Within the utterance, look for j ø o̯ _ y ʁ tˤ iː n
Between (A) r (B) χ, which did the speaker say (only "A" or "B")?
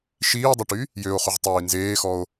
B